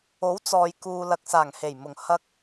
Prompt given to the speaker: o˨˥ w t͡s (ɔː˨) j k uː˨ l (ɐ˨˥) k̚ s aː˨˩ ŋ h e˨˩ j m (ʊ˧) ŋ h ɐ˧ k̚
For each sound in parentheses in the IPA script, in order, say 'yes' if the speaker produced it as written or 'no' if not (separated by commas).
yes, no, no